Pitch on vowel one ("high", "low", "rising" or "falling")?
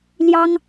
high